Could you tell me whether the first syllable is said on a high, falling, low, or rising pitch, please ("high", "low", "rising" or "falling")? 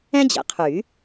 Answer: high